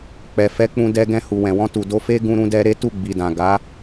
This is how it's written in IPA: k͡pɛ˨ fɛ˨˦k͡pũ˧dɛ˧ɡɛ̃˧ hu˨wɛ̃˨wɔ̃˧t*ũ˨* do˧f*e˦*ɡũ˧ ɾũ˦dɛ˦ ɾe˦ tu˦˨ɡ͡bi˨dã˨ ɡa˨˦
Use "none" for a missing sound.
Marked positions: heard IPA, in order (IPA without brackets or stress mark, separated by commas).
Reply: u˨, e˦